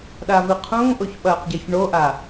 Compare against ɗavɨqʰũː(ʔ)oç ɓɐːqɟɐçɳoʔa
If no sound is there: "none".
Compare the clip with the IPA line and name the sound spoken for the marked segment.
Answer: ʔ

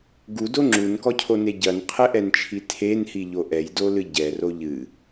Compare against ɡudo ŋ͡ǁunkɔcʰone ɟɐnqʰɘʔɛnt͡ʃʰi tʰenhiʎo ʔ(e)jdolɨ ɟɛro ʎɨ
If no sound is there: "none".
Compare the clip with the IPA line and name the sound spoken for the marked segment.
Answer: ɛ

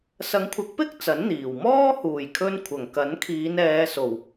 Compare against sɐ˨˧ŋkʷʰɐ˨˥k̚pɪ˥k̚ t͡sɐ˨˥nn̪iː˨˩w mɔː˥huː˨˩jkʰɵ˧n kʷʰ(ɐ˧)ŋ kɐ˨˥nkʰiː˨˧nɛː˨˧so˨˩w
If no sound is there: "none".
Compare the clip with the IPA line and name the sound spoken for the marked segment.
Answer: ɐ˨˩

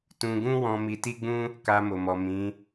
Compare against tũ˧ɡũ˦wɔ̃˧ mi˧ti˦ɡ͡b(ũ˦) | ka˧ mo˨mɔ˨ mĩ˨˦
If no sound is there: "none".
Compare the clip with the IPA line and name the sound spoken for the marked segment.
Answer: ũ˦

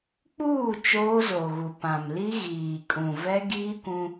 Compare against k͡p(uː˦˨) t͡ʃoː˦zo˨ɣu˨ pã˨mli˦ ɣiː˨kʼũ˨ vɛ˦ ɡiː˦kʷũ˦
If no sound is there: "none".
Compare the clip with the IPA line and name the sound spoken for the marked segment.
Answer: uː˦˨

